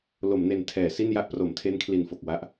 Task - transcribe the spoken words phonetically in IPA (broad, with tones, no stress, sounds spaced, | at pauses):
l o˩˦ m n e˨˩ n tʰ ɛː˩˦ s i˥˩ n j a˦˥ ʔ p r o˩˦ m tʰ e˦˥ n kʰ l i˨˩ n f o˨˩ k̚ w a˦˥ ʔ